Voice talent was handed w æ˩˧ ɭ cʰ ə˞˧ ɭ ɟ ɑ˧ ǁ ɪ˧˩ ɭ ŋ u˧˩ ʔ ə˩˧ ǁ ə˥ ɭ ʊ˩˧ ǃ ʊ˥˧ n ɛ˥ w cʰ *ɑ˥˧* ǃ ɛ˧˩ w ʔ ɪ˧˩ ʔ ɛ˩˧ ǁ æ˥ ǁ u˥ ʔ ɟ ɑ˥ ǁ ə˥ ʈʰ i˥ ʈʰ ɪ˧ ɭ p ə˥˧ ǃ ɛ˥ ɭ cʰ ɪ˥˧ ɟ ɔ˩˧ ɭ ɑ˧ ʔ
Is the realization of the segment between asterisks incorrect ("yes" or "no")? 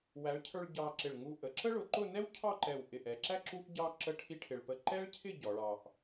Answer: no